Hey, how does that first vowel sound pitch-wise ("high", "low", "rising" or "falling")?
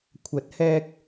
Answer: rising